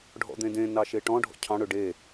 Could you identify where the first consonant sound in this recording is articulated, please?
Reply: retroflex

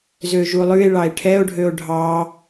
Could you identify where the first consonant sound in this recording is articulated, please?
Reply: alveolar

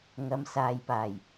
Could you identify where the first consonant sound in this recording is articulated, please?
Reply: velar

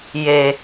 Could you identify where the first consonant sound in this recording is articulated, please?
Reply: palatal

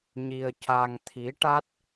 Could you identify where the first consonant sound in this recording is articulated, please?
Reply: palatal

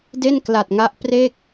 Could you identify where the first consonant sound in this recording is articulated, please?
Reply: alveolar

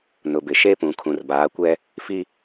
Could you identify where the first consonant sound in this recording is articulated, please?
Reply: alveolar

